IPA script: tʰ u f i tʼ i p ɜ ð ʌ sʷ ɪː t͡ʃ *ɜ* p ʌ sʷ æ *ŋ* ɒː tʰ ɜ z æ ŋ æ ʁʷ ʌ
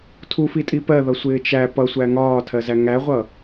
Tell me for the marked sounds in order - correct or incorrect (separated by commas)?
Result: incorrect, correct